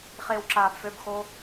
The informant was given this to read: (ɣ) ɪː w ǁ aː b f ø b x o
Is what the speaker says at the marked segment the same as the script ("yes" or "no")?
no